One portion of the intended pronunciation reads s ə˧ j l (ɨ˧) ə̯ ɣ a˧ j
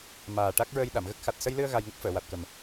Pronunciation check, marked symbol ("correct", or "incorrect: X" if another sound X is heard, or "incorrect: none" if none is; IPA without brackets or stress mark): correct